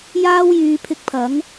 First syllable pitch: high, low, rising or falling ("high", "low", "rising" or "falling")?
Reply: high